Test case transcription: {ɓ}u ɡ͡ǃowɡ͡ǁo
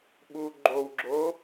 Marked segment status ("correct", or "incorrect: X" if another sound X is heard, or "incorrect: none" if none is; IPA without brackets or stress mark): correct